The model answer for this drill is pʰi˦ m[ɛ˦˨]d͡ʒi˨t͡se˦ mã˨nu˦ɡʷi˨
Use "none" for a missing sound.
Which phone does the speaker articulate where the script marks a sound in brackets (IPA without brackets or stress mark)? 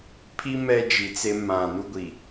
ɛ˦